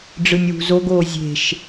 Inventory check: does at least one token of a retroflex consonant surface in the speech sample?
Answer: yes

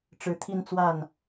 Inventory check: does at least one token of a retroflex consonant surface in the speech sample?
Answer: yes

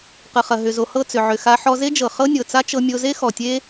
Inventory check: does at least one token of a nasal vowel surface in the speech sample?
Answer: no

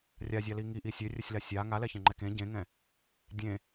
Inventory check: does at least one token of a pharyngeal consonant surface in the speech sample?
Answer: no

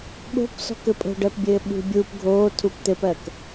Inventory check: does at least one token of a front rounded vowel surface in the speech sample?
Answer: no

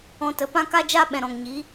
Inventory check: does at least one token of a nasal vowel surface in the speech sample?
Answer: yes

